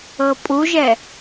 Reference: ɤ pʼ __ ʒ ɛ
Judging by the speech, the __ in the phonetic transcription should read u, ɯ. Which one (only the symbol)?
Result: u